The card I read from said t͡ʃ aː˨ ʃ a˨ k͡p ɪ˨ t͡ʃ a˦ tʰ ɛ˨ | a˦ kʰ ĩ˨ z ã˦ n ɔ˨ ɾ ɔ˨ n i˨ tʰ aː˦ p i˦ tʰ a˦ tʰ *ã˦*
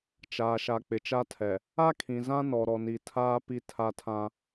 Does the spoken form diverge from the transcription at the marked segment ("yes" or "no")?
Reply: no